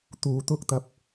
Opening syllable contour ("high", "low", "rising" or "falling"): low